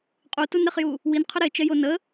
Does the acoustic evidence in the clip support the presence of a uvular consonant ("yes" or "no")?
yes